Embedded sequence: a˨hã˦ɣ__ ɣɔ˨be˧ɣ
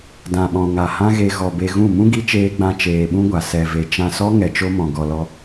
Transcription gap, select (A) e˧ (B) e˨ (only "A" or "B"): A